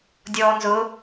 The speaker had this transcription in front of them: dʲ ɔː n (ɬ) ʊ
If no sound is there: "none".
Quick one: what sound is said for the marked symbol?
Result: z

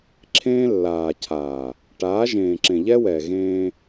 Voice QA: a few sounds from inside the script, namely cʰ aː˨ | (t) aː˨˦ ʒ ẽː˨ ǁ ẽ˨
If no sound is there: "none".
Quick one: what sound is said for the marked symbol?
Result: ʈ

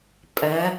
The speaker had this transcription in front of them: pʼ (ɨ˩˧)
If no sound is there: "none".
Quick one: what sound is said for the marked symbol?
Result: ɛ˩˧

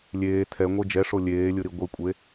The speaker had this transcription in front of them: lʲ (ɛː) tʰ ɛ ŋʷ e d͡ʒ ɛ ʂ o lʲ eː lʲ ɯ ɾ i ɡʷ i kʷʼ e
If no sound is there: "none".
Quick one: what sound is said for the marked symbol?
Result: eː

